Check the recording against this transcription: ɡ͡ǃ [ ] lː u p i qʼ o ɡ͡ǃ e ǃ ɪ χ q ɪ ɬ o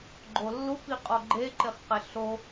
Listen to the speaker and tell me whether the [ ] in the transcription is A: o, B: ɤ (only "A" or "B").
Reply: A